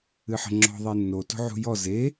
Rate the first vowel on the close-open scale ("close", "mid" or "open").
close